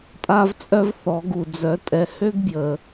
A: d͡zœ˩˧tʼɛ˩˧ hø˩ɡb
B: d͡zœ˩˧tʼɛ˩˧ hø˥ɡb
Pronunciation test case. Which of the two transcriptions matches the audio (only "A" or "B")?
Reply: B